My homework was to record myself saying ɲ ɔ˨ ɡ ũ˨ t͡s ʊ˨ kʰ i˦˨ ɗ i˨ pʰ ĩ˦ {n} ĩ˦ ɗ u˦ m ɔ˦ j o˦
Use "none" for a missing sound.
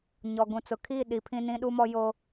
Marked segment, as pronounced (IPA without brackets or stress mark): n